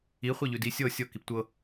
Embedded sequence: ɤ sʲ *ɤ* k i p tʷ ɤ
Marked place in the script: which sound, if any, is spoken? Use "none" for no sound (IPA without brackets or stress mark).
ɤ